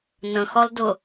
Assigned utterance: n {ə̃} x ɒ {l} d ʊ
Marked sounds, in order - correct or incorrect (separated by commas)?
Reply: correct, correct